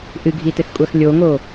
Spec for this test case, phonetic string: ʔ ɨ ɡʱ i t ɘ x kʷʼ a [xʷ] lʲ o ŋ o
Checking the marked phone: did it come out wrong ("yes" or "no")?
yes